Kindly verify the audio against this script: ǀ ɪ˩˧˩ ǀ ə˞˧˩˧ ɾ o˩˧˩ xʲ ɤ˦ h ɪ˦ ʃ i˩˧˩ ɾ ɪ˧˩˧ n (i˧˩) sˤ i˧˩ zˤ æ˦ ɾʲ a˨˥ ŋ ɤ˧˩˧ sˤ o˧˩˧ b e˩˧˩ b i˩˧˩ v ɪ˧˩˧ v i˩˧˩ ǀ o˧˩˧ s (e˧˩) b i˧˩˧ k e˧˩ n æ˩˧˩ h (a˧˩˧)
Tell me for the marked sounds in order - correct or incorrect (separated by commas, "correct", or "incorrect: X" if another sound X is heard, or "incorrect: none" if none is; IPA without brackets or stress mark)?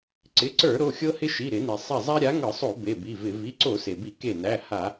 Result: incorrect: i˩, incorrect: e˩, correct